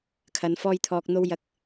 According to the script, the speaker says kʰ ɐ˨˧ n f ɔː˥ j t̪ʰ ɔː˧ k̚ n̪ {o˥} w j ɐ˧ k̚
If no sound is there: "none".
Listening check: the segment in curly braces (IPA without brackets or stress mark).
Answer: o˥